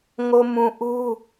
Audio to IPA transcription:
ŋ o˨ m ũ˨ ʔ u˦

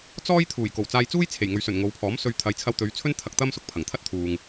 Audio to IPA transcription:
t͡s ɔː˥ j t̪ʰ uː˨˩ j k o˨˩ w t͡s aː˧ j t͡s uː˥ j t͡sʰ e˨˩ j ŋ ɵ˨ ɥ s ɵ˨˩ n ŋ o˨˧ w pʰ ɔː˨˥ m s ɵ˧ ɥ t̪ʰ ɐ˨˧ j t͡sʰ ɐ˧ w t̪ ɵ˨˧ ɥ t͡sʰ ɵ˥ n t̪ʰ ɐ˧ k̚ t̪ ɐ˥ m s ʊ˧ k̚ pʰ ɐ˨˩ ŋ t̪ʰ ɐ˥ t̚ t̪ʰ uː˨ ŋ

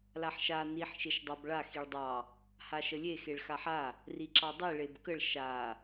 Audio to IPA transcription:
l a ħ ʃ a n i ħ ʃ e ʃ dˤ ɑ b ɭ a x i ɭ dˤ ɑ | h a ʃ ə lʲ e x e ɭ x a ħ a | r i ǁ ɑ dˤ i ɭ e b k ə ɭ ʃ a

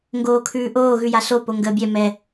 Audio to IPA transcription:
ŋ ɡ oː kʰ ʉː ʔ oː ɣ ʉ j a ɬ o p o ŋ ɡ əː bʲ ɛ m ɛ

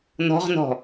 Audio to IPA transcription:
n ɔ̤ ʁ n ɔ̤

